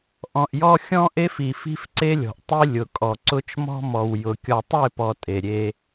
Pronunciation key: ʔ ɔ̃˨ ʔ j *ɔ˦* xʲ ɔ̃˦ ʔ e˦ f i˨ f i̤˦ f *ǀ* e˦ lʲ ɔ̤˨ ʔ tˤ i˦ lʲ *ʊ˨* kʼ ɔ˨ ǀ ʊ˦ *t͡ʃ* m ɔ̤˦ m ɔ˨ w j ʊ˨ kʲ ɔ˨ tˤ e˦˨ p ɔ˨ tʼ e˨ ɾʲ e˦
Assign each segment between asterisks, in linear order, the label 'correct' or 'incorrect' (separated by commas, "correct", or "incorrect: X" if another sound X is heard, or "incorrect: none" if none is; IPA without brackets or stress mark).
correct, correct, correct, correct